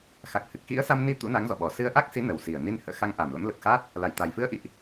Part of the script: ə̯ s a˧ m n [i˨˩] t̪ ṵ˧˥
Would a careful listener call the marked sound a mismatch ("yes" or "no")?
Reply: yes